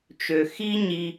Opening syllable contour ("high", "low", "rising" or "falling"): low